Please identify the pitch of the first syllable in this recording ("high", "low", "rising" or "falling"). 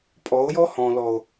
rising